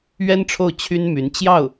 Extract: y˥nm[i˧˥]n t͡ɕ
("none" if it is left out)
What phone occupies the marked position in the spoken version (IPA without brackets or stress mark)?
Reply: y˧˥